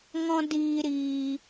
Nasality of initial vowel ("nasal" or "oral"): nasal